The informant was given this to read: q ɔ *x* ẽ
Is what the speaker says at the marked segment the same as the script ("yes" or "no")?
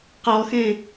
yes